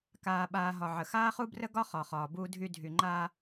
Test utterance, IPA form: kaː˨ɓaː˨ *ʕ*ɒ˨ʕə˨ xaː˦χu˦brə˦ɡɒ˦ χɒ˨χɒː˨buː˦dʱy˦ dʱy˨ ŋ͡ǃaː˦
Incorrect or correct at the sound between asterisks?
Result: incorrect: ɦ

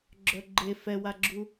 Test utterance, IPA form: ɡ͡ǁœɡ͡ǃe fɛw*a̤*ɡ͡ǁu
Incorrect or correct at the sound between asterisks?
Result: incorrect: a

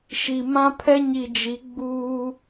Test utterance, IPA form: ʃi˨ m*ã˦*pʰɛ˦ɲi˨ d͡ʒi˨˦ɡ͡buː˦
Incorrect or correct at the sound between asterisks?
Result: correct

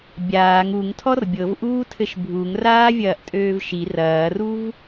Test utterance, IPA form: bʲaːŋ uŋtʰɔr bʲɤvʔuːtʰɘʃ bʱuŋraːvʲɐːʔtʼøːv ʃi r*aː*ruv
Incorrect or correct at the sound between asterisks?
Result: incorrect: ɐː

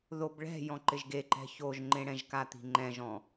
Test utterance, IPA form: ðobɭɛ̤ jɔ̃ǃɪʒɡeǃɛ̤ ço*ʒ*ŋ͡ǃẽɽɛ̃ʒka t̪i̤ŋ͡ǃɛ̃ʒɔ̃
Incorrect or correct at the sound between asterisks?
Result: correct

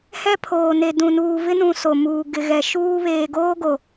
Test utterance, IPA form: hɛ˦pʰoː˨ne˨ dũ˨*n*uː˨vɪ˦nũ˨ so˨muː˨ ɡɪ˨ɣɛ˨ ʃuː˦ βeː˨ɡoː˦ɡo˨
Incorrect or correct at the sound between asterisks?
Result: correct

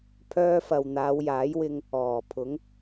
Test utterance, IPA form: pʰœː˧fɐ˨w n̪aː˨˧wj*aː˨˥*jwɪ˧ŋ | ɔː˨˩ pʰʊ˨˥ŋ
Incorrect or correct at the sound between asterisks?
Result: correct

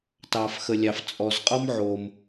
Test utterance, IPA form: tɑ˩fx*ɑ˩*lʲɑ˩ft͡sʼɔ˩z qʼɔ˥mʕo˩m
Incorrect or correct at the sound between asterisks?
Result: incorrect: ə˩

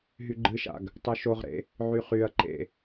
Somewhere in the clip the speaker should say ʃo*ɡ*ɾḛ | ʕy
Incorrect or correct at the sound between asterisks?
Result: incorrect: ʁ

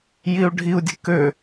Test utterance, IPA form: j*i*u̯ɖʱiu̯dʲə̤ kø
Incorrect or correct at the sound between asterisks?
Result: correct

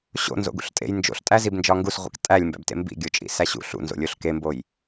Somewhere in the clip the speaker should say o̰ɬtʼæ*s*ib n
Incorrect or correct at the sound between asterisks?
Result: incorrect: z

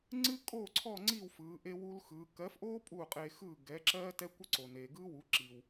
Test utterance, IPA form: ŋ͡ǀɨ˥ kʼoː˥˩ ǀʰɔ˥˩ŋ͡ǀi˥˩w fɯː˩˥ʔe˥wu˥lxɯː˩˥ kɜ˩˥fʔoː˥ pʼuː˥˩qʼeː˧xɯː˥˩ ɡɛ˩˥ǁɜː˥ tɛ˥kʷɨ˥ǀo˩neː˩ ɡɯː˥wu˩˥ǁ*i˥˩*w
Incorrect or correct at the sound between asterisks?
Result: incorrect: i˩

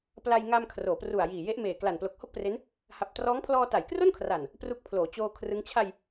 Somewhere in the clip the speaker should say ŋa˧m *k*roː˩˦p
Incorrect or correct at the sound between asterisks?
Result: incorrect: kʰ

